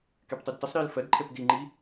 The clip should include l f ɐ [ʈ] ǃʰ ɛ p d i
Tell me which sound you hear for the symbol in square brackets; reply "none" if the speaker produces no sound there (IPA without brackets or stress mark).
d